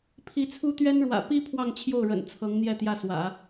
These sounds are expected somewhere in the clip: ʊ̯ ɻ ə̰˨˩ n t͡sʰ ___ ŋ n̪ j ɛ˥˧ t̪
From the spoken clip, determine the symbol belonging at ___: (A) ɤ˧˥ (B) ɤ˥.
A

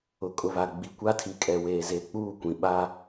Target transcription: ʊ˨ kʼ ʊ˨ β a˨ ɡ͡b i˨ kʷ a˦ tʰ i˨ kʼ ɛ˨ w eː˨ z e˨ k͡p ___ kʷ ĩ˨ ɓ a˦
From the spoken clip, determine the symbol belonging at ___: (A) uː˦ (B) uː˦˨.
B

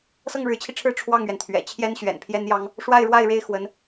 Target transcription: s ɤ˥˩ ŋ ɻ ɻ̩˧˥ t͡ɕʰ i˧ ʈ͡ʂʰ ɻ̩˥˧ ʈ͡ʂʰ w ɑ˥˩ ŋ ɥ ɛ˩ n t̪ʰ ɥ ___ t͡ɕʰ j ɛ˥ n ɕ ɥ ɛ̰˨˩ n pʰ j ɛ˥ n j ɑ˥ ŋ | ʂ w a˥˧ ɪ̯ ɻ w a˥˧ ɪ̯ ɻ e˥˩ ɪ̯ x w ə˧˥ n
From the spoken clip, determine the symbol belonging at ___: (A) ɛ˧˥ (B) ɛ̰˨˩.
B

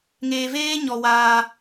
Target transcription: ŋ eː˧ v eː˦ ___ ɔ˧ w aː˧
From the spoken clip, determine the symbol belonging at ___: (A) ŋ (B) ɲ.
B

